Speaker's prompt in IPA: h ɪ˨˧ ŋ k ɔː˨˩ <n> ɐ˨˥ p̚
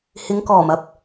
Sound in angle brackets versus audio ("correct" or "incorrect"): incorrect